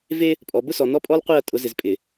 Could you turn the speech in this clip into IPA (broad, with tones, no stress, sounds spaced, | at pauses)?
v e˦ | pʼ ɔ˨ b ʊ˦ s ɔ˨ n ɔ˦ pʼ ɔ˦ l qʷ i˦˨ ɐ̯ tʼ ʊ˨˦ z ɪ˨ z pʼ ɪ˨